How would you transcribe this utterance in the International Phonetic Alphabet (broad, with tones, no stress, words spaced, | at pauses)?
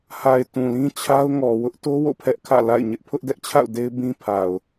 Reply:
ha˨ɪ̯ tũ˨lĩ˦t͡ɕʰa˦ʊ̯ŋɔ˨ wʊ˦ʔto˦wo̰˦˨ pʰɛ˦ʔkʰä̰˦˨ la̰˦˨ɪ̯ɲɪ˦ʔ pʰʊ˦ʔdɛ˦ʔt͡ɕʰa̰˦˨ʊ̯ de˦ɪ̯bĩ˦pʰa˨ʊ̯